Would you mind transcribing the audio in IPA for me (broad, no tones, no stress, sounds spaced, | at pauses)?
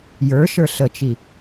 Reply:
j ə˞ ʃ ə˞ ɬ ə t͡ʃ i